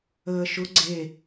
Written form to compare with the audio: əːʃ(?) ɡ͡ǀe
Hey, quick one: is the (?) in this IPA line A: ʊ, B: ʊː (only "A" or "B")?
A